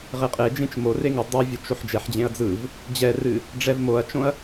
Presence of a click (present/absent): absent